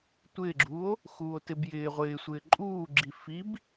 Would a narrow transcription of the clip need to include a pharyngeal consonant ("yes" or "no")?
no